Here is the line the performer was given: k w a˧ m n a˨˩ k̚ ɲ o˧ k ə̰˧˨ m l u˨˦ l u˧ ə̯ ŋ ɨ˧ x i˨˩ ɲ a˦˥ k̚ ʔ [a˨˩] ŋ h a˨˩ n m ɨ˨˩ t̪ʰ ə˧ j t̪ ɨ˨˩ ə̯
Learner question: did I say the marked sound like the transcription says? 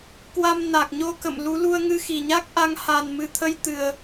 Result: no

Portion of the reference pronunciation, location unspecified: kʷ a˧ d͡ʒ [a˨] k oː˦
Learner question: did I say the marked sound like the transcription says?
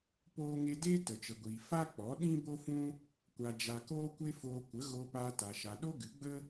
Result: no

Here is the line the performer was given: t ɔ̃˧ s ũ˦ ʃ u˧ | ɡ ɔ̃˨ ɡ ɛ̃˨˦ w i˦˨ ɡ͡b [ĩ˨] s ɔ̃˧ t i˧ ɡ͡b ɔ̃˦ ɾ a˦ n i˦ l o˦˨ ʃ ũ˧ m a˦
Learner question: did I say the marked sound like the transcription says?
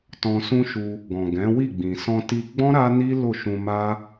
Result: yes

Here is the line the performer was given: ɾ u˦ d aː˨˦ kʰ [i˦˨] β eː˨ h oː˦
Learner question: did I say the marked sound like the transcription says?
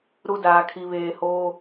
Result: no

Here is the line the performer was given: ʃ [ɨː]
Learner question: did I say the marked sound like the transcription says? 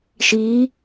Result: no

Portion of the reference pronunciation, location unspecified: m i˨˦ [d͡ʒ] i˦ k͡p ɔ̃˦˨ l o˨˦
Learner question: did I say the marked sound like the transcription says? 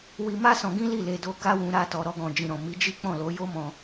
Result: yes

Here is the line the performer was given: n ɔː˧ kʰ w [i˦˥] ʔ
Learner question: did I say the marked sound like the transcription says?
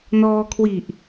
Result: no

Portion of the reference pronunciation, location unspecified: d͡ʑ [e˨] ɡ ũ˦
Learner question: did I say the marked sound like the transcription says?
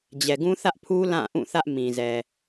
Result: no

